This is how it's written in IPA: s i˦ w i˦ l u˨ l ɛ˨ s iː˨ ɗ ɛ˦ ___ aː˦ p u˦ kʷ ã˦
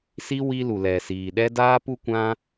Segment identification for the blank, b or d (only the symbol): d